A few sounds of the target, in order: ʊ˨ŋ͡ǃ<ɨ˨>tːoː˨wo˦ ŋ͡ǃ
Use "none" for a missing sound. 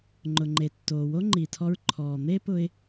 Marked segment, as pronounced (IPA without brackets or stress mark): e˨